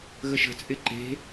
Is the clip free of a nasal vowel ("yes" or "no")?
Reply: yes